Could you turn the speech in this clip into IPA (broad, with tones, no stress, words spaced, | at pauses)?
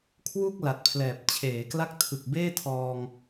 kʰwu˥˩k̚ la˨˩t̚pʰlɛː˨˩p̚ t͡ɕʰeː˩˦kla˦˥k̚ tʰɯ˨˩k̚beː˥˩tʰɔː˧ŋ